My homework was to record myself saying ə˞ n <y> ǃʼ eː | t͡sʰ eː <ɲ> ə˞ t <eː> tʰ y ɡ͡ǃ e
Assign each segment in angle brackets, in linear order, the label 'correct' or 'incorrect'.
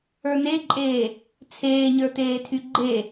incorrect: e, correct, correct

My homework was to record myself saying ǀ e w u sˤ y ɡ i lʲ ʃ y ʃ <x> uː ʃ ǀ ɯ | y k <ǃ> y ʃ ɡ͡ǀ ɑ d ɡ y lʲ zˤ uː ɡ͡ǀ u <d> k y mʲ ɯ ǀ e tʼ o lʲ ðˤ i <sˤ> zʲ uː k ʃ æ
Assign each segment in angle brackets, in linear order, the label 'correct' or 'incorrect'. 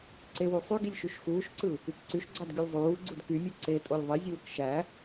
correct, incorrect: ǀ, correct, incorrect: none

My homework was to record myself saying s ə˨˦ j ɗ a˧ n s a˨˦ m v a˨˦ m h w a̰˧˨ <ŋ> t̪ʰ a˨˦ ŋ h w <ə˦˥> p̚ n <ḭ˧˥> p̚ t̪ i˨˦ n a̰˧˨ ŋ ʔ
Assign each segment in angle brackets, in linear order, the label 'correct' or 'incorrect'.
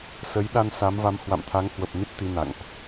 incorrect: m, incorrect: ə˨˩, incorrect: i˦˥

